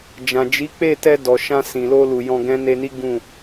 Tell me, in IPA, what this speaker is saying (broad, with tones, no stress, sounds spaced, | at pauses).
d͡ʒ ã˨ d͡ʒ i˨˦ k͡p e˦˨ t ɛ˧ d ɔ˨ ʃ ã˧ s ĩ˨ l o˧ l u˨ j ɔ̃˧ ɡ ɛ̃˦ n e˧ n i˦ ɡ ũ˦˨